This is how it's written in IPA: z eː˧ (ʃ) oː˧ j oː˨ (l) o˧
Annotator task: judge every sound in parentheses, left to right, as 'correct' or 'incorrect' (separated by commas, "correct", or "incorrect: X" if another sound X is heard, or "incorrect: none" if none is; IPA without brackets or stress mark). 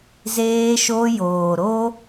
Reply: correct, incorrect: ɾ